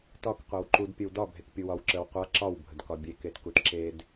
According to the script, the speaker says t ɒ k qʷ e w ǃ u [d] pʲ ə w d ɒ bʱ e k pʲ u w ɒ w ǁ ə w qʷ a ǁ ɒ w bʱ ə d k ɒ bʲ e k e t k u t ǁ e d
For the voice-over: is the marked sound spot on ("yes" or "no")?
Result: yes